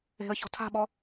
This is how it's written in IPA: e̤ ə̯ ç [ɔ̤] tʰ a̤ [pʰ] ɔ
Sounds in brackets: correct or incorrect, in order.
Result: correct, incorrect: ɓ

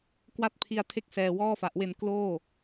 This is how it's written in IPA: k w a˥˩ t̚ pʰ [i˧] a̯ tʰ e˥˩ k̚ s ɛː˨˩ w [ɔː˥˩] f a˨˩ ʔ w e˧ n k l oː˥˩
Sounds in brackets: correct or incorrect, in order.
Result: correct, correct

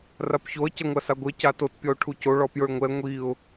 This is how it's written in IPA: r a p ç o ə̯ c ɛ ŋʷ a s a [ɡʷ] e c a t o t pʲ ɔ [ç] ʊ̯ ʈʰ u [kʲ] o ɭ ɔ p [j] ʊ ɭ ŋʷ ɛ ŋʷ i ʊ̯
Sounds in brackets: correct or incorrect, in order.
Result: correct, incorrect: none, incorrect: c, correct

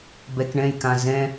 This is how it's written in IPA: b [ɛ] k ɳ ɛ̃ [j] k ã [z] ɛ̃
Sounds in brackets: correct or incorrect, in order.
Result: correct, correct, correct

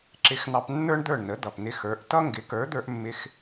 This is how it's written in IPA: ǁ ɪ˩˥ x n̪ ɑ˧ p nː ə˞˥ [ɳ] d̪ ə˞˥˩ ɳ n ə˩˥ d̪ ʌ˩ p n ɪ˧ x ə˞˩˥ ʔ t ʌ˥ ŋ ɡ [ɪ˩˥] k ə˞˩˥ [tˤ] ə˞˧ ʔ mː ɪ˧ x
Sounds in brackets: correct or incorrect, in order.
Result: correct, correct, incorrect: d̪

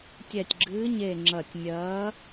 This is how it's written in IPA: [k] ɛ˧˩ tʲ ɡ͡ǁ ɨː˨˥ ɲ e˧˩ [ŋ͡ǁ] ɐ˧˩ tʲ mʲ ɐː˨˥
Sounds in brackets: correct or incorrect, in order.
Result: incorrect: tʲ, correct

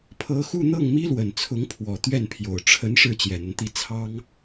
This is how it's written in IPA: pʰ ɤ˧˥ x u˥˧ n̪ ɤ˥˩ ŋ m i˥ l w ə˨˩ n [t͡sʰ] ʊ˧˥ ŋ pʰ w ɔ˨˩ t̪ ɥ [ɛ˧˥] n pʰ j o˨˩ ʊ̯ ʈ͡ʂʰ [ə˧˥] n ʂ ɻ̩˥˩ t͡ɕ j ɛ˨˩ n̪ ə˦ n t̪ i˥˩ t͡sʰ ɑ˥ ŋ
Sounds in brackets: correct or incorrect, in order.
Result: correct, incorrect: ɛ˥˩, correct

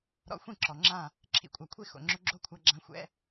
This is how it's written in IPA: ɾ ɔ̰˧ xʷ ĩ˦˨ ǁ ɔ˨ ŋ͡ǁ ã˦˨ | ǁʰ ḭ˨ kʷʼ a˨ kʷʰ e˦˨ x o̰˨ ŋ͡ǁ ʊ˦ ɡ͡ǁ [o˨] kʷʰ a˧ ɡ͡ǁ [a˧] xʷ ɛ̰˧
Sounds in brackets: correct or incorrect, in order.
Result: incorrect: o˦, incorrect: ã˧

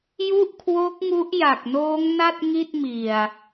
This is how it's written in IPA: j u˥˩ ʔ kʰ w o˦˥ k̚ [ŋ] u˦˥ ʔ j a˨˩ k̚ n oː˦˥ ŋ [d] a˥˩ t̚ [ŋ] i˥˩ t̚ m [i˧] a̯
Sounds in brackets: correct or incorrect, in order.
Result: correct, incorrect: n, correct, incorrect: i˨˩

